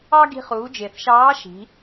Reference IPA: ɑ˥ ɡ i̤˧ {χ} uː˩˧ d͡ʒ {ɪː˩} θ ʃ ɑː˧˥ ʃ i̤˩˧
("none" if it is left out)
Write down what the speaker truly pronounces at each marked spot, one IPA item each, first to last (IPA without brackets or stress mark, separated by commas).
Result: χ, ɪː˩